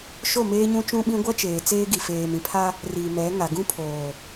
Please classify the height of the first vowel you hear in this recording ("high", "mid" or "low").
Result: mid